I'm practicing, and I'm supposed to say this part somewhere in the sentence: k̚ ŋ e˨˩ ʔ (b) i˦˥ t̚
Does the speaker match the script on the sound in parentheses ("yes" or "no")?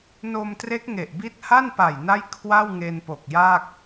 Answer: yes